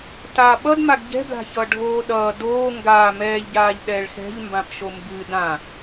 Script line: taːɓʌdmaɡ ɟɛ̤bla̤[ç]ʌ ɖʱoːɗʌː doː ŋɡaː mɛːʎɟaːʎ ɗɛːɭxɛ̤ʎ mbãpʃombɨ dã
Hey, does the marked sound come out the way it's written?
yes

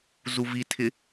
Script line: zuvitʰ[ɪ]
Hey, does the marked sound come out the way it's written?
yes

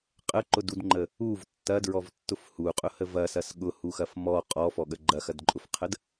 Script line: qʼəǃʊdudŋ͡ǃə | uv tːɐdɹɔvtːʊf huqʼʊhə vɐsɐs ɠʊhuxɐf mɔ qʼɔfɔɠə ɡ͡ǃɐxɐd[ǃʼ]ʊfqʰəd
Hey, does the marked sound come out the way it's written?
yes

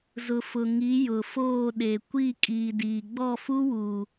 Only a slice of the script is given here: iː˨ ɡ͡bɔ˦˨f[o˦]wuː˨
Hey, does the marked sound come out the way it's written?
no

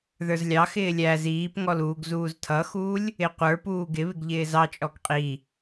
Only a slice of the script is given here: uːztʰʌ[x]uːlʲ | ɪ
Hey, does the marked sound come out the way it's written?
yes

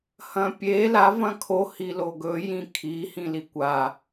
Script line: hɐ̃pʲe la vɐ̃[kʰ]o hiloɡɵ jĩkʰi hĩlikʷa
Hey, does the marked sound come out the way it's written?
yes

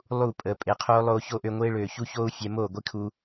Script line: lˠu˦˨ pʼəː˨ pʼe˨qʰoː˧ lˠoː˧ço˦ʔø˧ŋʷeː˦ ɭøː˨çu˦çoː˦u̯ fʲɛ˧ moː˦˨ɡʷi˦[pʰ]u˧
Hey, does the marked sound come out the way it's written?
no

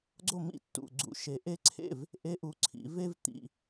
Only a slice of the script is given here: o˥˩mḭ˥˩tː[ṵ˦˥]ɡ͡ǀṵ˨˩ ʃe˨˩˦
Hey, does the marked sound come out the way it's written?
no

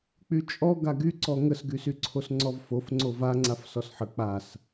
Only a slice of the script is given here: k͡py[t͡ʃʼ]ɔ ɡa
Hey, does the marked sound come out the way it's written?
yes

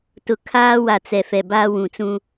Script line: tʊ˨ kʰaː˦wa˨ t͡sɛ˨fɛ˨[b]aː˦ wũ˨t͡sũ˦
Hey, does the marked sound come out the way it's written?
yes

